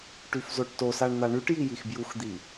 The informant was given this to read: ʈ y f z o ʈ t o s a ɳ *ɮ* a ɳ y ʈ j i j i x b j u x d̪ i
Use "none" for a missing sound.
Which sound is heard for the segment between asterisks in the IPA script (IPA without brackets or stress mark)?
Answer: n̪